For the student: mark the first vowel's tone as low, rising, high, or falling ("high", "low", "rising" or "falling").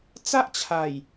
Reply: high